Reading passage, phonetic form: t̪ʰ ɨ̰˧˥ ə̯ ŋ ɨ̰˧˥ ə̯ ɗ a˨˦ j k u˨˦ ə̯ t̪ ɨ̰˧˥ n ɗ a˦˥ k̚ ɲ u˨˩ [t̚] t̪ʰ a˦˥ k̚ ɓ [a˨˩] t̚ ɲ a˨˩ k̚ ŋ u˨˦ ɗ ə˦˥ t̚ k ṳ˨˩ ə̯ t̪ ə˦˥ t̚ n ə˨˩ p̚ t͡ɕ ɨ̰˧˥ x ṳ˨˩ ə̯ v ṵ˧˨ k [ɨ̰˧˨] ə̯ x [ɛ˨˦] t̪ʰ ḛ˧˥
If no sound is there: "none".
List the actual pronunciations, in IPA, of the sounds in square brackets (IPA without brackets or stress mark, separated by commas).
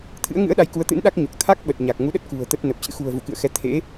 k̚, ə˨˩, ɨ̰˧˨, ɛ˨˦